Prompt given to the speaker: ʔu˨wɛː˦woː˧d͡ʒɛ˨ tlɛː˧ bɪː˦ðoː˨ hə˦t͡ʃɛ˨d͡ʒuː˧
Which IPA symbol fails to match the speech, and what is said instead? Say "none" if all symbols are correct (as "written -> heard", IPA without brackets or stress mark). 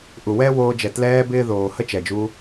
none